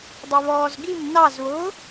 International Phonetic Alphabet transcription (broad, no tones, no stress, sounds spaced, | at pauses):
dˤ ɛ β ɔː z ɡ i m n ɑ z β ʊː